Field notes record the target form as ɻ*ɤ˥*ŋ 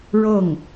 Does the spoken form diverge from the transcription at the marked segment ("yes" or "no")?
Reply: yes